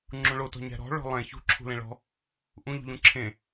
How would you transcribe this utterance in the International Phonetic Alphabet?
ŋ͡ǁ ũ ɭ o t ɔ̤ ɲ æ̤ ɾ ɔ̤ ɭ ɔ̤ lˠ ẽ ç ṳ ǁʰ ṳ l ẽ ɭ ɔ̤ | ʔ ũ ʎ ṳ ʎ ũ ǁʰ ẽ

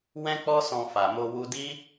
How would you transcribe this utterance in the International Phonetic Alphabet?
w ɛ̃˦ k͡p ɔ˦ s ɔ̃˧ f a˨ m o˧ w u˧ d i˦

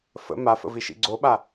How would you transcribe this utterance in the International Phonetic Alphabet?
f ə̰ m a f ə̰ v i ʃ ḭ ɡ͡ǀ o ɓ a

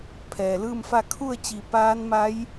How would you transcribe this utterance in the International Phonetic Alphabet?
pʰ ɛː˩ l ɯː˥˨ m f a˥˨ kʰ u˥˨ ə̯ t͡ɕ i˧˩ p aː˧˥ n m a˧˥ j

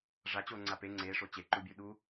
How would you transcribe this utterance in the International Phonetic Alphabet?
ʐ a t͡ɕ o ŋ͡ǀ a p e ŋ͡ǀ e ʂ o t͡ɕ e ǃ u bʲ u ɗ u

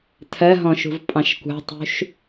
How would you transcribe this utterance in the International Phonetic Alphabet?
tʰ ɜ ɦ ɔ̃ ʃ ṳ v pʼ ɑ̃ ʃ kʷ ɑ̤ tˤ ṳ ʃ

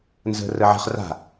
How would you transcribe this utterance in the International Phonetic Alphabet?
n z ə̤ r ə ʕ ə̤ χ r a̤

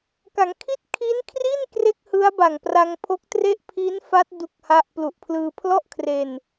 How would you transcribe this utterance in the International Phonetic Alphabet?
k a˩˦ ŋ kʰ i˥˩ t̚ kʰ i˦˥ n kʰ r i˥˩ n k r e˥˩ k̚ h ɯ˦˥ a̯ b a˨˩ ŋ p r a˧ ŋ pʰ o˦˥ k̚ t r e˥˩ ʔ pʰ iː˦˥ n f a˦˥ t̚ d u˦˥ k̚ h a˦˥ ʔ p l u˨˩ ʔ pʰ l ɯː˧ pʰ l ɔ˥˩ ʔ kʰ r e˧ n

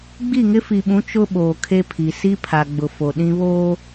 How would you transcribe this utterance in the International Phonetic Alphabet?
ɡ͡b i˦˨ ŋ ɪ˦ f i˨ ɓ ũ˨˦ t͡ʃ ʊ˦ ɓ oː˨ kʰ e˦ pʰ i˨ s i˦ pʰ a˨ ɡ͡b ʊ˨ f o˨ ɗ ĩ˦ β oː˦

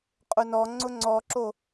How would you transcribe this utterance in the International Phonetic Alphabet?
qʼ ʊ n ɔ ŋ͡ǀ ʊ ŋ͡ǀ ɔ ǁ o

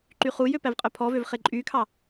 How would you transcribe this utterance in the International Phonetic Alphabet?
ǃ y χ u j ø p æ v qʼ œ pʰ ɔ v ø v χ e ǃʼ y kʰ ɑ

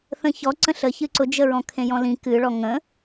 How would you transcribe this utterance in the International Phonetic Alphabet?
θ ə̃ ç ɔ ǀ ə̃ ɬ ə ç ɨ ǀ ʊ d͡ʒ ə ɹ ɔ̃ kʰ ẽ j ɔ̃ l ĩ k ɨ ɭ ɔ ŋ ə̃

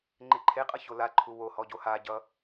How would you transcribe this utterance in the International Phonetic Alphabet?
ŋ͡ǃ e ǃʰ e qʼ ʌ ç o l a ǃʰ u w o h ɔ ɟ o h a ɟ ʌ

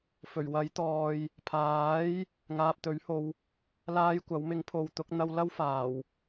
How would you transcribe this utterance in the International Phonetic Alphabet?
f ɵ˨˩ ɥ w ɐ˨˥ j t̪ ɔː˨ j | pʰ aː˨˥ j | ŋ aː˨ p̚ t̪ ɵ˨˥ ɥ h o˧ w | l aː˥ j kʷ ɐ˨˥ w m ɪ˨˥ ŋ pʰ o˨ w t̪ ʊ˨˥ k̚ n̪ ɐ˧ w l ɐ˥ w f aː˨˩ w

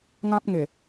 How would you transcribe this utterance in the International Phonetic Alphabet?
ŋ ã˦ p̚ ŋ e˨˩

